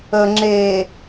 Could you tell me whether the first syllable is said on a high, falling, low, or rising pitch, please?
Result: low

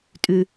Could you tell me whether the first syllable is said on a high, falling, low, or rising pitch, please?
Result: low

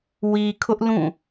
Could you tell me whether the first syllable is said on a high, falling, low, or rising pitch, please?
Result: low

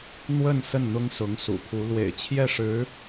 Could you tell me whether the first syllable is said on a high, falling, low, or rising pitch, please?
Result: falling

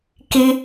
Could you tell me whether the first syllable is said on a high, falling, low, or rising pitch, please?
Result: high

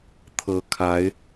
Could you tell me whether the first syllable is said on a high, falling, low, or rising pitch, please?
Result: rising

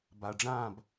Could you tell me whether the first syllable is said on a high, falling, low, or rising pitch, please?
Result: low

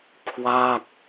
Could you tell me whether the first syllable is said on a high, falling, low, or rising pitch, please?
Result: falling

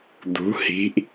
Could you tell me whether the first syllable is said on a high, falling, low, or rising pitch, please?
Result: rising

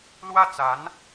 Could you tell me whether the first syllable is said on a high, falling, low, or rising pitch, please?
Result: falling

